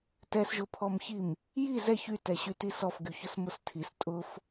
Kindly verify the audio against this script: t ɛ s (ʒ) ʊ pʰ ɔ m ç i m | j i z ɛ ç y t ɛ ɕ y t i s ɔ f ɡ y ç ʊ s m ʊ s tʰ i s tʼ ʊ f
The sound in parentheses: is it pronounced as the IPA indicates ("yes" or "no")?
yes